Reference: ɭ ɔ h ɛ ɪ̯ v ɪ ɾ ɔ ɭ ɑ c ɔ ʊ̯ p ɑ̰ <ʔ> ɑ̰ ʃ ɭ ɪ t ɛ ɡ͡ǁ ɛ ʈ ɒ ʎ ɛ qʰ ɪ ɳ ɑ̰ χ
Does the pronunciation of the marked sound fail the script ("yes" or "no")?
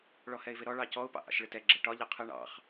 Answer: no